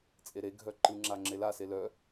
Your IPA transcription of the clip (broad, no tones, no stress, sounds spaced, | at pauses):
t͡sʼ e ɾ e ɡʱ œ ǃ ɯ ŋ͡ǁ a ŋ͡ǁ e l a s e l œ